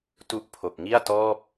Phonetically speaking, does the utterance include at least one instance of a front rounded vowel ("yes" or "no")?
no